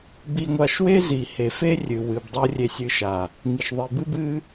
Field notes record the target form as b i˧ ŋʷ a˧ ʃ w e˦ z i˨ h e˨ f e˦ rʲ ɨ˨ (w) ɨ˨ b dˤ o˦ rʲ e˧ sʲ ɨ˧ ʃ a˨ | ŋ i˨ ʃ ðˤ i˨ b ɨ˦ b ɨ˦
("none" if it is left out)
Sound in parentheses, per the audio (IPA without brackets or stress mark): w